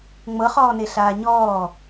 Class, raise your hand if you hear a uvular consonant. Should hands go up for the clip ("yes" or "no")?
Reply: yes